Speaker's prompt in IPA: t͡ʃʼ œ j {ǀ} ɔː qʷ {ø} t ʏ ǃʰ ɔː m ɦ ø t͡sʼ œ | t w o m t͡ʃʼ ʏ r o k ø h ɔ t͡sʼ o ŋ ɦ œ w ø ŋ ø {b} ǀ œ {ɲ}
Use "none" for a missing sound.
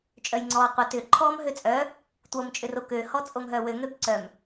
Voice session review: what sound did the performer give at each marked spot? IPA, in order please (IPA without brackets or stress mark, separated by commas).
ŋ͡ǀ, œ, b, m